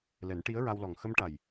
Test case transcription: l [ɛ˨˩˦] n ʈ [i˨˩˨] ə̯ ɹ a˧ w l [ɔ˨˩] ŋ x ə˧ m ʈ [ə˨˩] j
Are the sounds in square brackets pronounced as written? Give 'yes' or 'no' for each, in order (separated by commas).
yes, no, yes, no